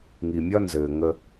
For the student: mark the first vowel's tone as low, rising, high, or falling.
low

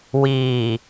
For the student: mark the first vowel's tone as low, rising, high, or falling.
low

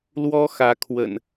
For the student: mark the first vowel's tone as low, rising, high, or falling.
high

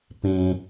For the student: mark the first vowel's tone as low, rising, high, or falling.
low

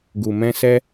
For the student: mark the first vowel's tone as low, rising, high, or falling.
low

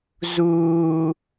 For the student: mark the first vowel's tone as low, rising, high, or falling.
low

